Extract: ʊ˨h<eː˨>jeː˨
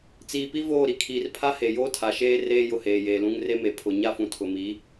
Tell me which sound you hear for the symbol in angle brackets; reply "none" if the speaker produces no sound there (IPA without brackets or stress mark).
eː˨